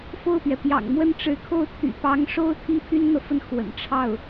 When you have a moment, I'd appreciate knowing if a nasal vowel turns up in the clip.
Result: no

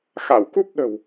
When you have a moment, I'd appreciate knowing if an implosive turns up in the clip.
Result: yes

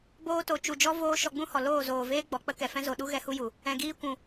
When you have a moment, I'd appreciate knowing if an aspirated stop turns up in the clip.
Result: no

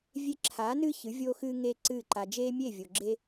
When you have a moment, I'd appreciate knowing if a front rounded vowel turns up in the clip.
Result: no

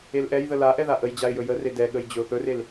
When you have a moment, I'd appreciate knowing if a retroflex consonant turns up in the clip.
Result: no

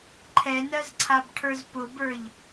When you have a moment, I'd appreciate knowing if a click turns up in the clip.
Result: yes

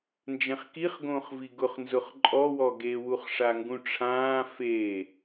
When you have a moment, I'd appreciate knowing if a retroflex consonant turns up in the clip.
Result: yes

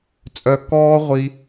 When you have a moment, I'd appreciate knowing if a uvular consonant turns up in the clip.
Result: yes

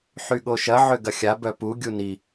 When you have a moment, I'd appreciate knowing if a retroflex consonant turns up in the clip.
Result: no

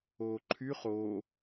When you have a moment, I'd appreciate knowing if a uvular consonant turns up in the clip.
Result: yes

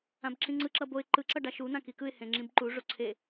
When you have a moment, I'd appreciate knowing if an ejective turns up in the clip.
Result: no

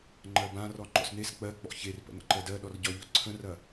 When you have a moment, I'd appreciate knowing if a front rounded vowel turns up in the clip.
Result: no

